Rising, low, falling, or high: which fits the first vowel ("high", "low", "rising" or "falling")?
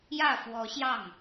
falling